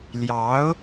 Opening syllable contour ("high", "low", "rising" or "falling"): rising